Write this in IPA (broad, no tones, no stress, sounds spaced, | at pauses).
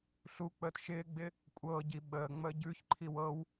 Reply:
ɬ u k͡p əː t ʃ ɪː ɡ͡b ɪ | kʷʼ ɤː ɟ i ɓ əː ŋ͡m əː ɟ ʉ ç ǃʰ i w ɤ w